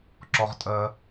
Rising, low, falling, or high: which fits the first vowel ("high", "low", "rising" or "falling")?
low